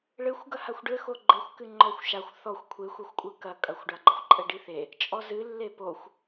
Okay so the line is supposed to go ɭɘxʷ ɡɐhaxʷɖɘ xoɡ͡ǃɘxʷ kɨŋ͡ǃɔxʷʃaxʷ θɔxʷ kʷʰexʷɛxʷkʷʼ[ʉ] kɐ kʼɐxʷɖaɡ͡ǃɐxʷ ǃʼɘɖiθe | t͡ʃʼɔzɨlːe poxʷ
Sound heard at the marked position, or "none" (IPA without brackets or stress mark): ɨ